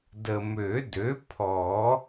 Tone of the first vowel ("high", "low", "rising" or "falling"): low